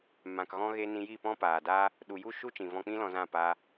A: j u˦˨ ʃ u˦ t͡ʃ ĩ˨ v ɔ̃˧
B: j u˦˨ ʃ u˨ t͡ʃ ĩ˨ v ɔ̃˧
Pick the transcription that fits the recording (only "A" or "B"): A